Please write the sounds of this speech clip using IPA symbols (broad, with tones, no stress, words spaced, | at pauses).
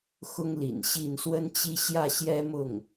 xʊ˥ŋlḭ˨˩nɕi˥˩n swə˥nt͡ɕi˥ ɕjä˥˩ɕjɛ˥mʊ˥˩ŋ